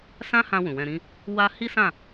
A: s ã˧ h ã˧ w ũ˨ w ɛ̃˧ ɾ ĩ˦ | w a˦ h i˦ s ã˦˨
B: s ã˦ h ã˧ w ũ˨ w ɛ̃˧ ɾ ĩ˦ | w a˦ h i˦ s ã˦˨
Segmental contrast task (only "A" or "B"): B